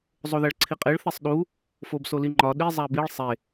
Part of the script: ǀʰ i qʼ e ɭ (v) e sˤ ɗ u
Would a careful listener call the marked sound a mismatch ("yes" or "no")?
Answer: yes